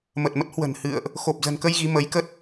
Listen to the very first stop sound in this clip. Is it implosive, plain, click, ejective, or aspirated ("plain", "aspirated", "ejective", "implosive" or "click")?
plain